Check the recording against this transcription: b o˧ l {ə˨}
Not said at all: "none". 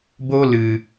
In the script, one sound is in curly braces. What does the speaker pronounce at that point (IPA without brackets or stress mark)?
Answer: ɨ˨